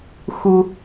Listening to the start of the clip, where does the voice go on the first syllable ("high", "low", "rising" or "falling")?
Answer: high